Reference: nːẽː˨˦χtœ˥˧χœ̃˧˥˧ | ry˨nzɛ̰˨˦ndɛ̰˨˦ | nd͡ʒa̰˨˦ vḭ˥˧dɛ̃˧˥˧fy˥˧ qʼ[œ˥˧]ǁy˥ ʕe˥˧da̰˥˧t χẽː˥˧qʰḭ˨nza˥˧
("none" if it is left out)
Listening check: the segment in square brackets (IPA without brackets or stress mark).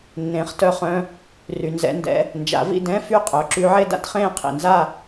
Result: œ˨˦